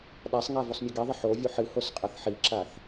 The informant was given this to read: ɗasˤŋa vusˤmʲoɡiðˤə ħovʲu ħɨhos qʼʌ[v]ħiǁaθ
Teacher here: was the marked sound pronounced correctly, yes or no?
no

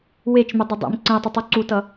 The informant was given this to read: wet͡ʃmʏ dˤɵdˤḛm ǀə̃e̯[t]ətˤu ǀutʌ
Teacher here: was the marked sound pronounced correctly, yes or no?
no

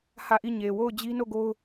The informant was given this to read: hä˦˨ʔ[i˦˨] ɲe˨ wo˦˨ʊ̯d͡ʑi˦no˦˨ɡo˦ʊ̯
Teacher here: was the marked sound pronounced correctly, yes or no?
yes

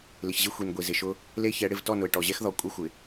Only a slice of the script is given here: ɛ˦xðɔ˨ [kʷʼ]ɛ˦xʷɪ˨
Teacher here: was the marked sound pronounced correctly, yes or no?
yes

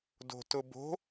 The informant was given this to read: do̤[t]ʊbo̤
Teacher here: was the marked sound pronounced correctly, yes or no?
yes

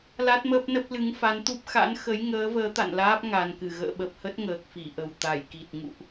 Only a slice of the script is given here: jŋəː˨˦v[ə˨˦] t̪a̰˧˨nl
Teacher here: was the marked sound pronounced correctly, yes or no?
no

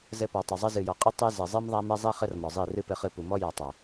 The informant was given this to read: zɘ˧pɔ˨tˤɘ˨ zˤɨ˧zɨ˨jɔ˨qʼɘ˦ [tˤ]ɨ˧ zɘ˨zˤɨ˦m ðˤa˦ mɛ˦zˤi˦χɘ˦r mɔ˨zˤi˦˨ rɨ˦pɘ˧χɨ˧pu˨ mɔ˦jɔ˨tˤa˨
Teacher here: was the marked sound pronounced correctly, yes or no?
yes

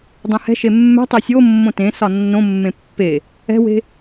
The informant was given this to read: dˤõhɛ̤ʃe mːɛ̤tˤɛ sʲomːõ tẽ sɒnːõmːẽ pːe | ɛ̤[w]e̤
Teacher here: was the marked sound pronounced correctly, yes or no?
yes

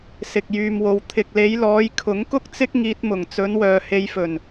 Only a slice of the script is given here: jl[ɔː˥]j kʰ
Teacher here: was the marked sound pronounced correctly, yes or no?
no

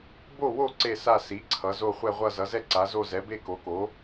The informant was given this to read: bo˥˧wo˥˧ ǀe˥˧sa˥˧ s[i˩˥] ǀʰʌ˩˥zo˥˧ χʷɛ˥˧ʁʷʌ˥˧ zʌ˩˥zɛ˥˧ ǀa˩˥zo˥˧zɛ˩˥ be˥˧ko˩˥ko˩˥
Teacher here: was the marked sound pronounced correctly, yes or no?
yes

